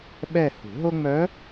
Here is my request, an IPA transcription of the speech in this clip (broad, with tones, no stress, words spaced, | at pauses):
ɓɛ˦˨hṳ˨˩˦ɦo˥ ŋ͡mœ˧˥